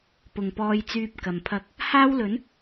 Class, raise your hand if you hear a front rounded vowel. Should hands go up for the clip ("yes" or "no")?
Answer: yes